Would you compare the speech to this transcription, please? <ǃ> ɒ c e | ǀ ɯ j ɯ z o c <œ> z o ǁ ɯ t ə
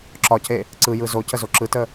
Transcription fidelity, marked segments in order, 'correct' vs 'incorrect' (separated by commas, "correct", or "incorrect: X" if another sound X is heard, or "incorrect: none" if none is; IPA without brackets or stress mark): incorrect: ǁ, incorrect: ə